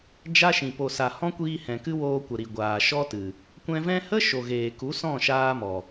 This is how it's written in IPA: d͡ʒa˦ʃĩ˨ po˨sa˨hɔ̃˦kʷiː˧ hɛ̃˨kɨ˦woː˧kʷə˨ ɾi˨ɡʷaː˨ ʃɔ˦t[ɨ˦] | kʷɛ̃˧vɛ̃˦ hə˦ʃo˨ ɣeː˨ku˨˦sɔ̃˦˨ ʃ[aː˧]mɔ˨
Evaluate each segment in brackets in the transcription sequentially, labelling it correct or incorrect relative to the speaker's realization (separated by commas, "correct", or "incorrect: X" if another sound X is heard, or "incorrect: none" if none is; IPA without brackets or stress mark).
incorrect: ɨ˨, correct